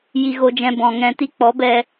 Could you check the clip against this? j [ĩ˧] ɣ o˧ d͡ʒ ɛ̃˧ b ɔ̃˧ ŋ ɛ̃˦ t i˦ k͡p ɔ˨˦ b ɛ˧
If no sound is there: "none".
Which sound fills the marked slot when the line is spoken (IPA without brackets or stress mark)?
i˧